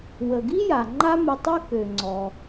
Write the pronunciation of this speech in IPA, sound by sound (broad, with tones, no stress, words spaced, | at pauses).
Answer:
wə˩ɡi˥ja˩ ŋ͡ǃa˥mə˧tˤø˥ kø˩ŋ͡ǀɔ˩